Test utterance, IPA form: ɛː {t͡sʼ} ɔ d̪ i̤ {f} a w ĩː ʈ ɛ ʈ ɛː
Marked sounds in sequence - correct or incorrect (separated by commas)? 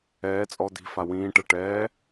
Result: correct, correct